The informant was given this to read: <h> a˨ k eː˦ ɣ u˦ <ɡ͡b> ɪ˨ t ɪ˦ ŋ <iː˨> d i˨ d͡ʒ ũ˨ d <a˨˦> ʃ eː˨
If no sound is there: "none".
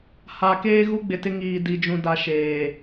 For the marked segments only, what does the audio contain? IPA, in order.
h, ɡ͡b, iː˨, a˨

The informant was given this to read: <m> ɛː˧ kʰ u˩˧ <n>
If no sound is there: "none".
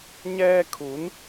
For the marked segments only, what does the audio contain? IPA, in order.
ɲ, n

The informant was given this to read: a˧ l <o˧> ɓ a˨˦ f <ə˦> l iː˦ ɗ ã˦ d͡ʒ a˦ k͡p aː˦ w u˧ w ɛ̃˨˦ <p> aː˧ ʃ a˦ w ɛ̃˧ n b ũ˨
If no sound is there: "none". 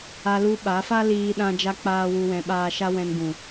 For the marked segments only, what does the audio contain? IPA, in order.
u˧, a˦, ɓ

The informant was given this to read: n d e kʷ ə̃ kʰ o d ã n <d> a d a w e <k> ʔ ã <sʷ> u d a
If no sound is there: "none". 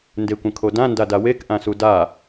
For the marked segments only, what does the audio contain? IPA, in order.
d, k, s

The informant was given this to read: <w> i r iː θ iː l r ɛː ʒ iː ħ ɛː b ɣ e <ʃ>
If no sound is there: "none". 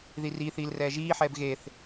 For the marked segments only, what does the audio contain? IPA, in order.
ð, θ

